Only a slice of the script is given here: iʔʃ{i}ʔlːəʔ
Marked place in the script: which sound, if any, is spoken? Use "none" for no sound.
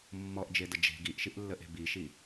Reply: i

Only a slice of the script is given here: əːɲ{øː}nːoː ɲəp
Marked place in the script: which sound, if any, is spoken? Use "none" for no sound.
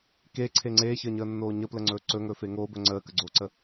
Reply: əː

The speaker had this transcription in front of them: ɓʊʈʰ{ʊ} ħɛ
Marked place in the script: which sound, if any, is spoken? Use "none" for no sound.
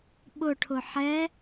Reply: ʊ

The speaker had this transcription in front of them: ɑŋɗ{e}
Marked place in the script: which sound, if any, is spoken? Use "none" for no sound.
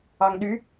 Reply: y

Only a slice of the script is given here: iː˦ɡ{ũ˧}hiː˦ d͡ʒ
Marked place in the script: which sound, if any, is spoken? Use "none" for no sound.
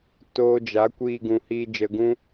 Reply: ũ˧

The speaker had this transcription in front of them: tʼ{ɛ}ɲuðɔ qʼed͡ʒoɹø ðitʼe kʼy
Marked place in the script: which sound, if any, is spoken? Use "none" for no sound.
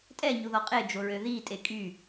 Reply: ɛ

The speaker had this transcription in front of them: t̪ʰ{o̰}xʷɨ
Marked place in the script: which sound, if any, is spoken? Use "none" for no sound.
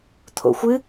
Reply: o̰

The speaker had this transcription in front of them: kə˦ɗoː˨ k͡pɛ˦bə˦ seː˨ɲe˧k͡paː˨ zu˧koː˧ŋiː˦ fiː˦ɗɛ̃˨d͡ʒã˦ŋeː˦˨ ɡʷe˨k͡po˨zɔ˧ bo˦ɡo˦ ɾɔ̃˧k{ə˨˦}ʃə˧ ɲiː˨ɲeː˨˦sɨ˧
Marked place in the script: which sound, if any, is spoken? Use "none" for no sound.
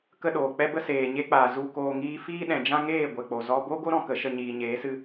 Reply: ə˨˦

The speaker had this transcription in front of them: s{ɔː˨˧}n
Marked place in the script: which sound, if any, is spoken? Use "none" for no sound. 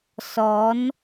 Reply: ɔː˨˧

